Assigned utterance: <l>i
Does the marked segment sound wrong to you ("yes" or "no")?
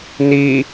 yes